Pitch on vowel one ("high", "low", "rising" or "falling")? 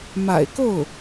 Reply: low